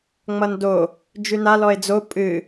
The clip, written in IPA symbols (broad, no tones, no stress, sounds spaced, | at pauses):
ŋ͡m ʌ n d o | d͡ʒ ʉ n a l ɔ e̯ d͡z o pʼ ɨ